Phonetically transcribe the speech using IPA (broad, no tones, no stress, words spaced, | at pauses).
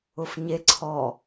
ʊfɲe ǀʰɔ